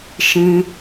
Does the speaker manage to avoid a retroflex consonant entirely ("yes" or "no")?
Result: yes